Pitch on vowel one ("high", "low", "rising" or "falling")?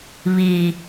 low